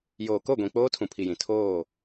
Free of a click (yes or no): yes